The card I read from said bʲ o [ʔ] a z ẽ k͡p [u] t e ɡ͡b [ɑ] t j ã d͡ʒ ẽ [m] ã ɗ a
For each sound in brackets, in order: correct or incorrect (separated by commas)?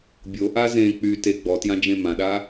correct, incorrect, incorrect, correct